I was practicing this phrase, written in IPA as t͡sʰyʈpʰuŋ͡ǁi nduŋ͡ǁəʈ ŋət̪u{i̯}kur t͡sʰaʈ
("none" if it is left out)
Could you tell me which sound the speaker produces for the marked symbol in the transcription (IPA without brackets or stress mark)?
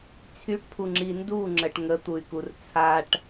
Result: y̯